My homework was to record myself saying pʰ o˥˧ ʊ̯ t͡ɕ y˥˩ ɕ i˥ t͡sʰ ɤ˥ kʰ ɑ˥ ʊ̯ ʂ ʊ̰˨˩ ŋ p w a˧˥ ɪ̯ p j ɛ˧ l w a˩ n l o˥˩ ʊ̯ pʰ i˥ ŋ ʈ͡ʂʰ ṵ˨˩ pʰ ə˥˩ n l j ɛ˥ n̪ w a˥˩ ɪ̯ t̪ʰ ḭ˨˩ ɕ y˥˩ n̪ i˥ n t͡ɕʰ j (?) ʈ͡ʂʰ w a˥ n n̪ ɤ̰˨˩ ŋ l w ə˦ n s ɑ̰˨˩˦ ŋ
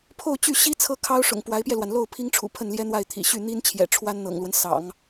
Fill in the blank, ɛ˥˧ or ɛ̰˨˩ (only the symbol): ɛ̰˨˩